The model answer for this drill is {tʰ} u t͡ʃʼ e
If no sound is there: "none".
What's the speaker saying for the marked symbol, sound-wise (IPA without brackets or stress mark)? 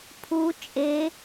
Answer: pʰ